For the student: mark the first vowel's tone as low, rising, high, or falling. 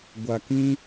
low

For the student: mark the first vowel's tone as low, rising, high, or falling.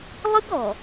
high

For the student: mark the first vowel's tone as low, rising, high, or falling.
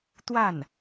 falling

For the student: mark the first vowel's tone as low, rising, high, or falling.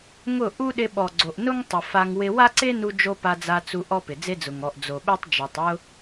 falling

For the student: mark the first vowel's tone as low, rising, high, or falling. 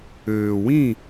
low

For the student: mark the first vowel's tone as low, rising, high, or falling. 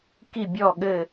falling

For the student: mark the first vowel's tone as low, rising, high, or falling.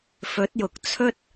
rising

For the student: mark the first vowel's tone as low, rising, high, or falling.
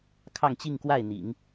falling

